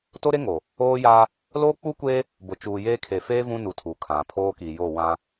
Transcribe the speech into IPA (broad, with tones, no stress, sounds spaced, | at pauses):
t o˦ ɾ e˦ ŋ o˨ | oː˦ j aː˦ | l oː˦ k͡p u˦ kʷ e˦ | b ʊ˨ t͡ʃ uː˨ j eː˦ kʰ e˨ f eː˦ v ũ˦ n u˨ tʰ u˨ kʰ ã˨ pʰ oː˦ k i˨ j o˦˨ w ã˦